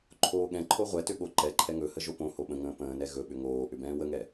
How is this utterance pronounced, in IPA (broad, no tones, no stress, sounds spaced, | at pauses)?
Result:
ǃʰ oː ɠ ɛ̃ ǃʰ o ʁʷ ɛ t ʏ ɠ o ǃ ɛ ǃʰ ɛ ŋ ɵ h ə ʒ o p õ h o ɓ ə̃ ŋ ə̃ː p ə̃ː n ɛ ɣ ɵ ɓ ʏ ŋ oː ʔ ʏ b ɛ̃ː w ə ŋ ɛ